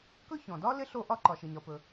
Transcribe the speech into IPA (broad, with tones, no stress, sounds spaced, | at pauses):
k ɵ˥ ç ɔ̃˩ d ɒ˥ l ɪ˥ ɬ o˥ ʔ ɒ˥ ǃ ɒ˩ ʃ ɪ˩ ɲ ɒ˩ p ɵ˩